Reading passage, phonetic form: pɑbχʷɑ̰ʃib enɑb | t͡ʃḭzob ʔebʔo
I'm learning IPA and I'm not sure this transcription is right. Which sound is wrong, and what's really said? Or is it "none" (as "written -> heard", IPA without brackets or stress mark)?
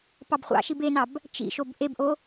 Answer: z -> ʃ